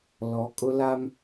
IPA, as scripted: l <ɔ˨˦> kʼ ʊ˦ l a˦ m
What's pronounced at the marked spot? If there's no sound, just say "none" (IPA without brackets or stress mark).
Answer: ɔ˨˦